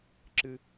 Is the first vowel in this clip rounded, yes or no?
no